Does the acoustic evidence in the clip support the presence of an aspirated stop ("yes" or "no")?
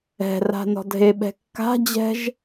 no